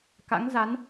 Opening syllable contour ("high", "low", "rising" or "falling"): rising